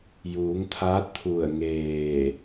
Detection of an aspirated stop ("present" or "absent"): present